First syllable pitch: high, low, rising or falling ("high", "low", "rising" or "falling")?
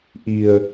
low